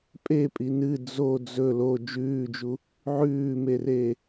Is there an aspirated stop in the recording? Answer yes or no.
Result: no